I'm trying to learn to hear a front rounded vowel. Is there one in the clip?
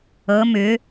yes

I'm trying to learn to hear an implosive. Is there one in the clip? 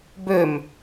no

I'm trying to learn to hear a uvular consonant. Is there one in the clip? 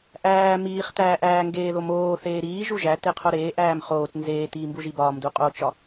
yes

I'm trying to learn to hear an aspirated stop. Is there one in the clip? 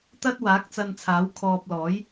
yes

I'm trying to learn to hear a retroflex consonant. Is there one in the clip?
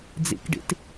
yes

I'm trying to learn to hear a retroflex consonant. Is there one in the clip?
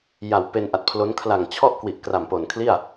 no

